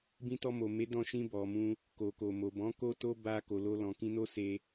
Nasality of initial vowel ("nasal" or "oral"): nasal